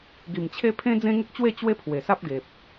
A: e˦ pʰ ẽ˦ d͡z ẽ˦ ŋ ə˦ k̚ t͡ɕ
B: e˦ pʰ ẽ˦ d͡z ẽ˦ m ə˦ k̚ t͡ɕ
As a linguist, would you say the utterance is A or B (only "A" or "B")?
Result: A